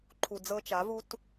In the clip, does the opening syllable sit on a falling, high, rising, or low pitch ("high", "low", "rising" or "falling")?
low